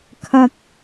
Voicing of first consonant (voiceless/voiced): voiceless